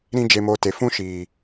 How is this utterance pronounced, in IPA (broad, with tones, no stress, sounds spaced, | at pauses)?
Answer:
ɾ ĩ˦ d͡ʒ e˧ m o˧ t e˨ f ũ˦ ʃ iː˨